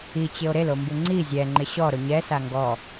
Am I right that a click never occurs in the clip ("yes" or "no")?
no